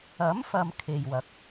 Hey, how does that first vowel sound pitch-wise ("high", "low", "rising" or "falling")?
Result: rising